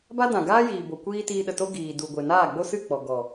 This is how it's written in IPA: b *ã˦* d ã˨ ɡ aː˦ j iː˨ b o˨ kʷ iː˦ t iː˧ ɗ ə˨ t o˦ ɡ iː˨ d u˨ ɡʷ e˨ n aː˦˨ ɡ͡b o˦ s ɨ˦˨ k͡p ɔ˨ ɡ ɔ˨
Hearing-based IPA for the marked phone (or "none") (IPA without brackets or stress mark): a˦